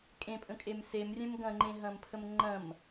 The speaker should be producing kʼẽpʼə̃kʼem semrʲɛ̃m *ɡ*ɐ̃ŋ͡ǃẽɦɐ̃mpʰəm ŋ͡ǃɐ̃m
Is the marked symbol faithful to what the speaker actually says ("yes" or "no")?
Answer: yes